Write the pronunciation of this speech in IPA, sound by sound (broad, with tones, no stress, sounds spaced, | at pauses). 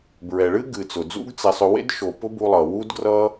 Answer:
b ɹ ɛ˨ ɭ ɨ˦ ɡ ɨ˨ t͡s ʊ˨ d͡z ṵ˦ ɡ t͡s ɛ˧ sˤ ʊ˧ w ḛ˦ d ʃ o˨ p ʊ˦ b u˧ lˠ ʌ˨ w u˦ d ɡ r ʌ˦